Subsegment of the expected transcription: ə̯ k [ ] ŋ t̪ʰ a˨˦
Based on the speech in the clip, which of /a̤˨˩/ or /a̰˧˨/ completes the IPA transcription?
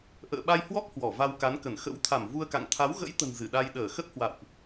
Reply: a̰˧˨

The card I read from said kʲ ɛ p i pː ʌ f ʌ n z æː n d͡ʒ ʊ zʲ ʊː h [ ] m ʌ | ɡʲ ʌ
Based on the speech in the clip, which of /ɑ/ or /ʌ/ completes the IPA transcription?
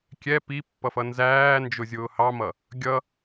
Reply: ɑ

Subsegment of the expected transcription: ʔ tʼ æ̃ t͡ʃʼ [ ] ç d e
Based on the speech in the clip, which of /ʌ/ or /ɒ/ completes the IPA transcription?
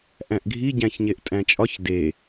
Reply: ɒ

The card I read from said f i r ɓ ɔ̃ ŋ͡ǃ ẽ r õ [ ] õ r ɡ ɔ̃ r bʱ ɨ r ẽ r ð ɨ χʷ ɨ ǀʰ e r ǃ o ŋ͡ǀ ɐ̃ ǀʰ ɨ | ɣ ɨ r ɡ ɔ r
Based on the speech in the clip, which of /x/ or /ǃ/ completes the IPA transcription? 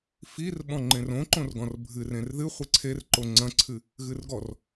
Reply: ǃ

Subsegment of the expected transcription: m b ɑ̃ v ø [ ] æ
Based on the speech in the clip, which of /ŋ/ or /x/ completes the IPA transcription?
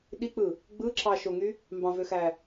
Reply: x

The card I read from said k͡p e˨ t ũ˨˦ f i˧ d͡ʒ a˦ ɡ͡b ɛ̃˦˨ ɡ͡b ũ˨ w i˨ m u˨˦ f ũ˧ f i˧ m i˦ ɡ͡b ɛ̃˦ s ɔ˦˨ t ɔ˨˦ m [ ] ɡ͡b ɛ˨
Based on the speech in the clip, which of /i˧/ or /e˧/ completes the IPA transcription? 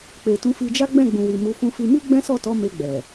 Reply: e˧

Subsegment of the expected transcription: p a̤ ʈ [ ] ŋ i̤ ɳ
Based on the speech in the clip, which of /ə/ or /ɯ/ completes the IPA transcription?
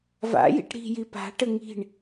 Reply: ə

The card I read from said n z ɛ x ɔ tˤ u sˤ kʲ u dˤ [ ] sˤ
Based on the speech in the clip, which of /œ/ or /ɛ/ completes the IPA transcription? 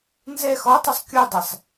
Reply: ɛ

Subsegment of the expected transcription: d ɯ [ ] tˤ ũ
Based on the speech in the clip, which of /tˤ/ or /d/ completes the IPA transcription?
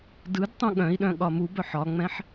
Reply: d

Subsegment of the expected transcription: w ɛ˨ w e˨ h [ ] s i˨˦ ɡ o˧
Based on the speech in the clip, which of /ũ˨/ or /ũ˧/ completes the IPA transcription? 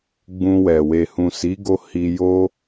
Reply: ũ˨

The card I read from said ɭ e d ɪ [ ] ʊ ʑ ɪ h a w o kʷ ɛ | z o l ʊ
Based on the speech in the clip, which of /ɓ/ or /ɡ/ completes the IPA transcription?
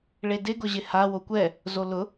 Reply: ɡ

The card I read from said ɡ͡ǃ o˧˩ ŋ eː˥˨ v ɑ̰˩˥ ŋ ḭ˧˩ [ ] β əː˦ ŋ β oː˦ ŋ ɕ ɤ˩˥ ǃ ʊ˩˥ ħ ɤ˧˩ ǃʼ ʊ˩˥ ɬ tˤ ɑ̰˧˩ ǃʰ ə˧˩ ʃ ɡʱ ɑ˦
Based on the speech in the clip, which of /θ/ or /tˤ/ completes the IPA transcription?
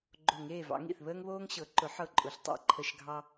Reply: θ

